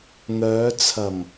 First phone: n̪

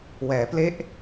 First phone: w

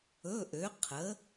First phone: ɵ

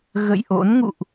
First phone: ɣ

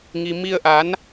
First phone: ŋ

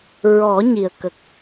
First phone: ɹ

